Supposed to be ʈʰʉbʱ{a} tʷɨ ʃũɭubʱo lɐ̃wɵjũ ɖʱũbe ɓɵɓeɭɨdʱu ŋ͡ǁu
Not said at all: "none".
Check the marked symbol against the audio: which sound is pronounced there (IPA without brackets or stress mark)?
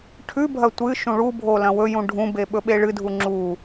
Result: ɐ